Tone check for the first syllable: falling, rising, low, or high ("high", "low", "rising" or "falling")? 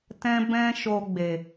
high